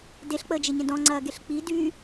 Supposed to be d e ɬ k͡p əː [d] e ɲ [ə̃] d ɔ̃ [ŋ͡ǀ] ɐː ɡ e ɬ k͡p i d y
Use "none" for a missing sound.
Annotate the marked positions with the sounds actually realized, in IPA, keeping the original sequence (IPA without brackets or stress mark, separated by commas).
d͡ʒ, ə̃, ŋ͡ǀ